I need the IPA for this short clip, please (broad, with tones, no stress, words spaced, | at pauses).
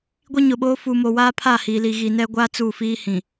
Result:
ɡʷi˦ɲʊ˨ɓoː˦ fu˨mo˨waː˦pʰa˦˨ hiː˨li˨ ɣi˨nɛ˦ɡʷaː˦ t͡su˦˨fiː˦ hĩ˨